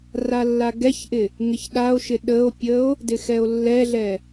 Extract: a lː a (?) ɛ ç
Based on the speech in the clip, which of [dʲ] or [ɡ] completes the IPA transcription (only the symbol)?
ɡ